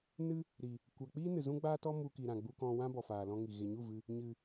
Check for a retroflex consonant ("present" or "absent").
absent